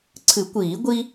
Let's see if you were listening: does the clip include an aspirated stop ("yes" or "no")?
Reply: yes